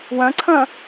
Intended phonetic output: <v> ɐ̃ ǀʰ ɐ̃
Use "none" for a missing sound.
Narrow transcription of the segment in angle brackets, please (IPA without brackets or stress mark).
w